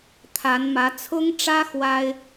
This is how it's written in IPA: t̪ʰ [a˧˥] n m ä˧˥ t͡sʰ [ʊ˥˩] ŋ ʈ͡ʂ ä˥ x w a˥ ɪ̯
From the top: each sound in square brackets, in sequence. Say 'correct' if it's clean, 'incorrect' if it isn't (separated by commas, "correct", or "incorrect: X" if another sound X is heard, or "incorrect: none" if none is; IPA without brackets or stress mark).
correct, incorrect: ʊ˥